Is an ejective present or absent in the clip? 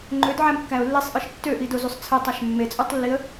present